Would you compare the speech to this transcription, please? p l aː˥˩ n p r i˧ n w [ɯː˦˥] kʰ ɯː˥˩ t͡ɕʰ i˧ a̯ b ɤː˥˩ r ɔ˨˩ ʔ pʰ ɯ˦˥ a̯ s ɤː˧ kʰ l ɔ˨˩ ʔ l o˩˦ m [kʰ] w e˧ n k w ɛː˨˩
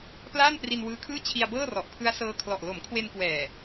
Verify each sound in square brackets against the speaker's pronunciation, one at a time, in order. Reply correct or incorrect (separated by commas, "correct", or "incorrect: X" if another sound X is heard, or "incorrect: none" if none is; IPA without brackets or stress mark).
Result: correct, correct